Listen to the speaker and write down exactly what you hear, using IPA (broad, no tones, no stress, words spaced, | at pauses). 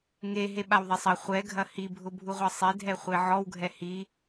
ŋe ɦeɓawðˤɛsˤɐ χʷɛ ɡʱɐhi bʱʊbʱuʁʷɐsˤe dʱɛχʷeʕɔw ɡʱɛhi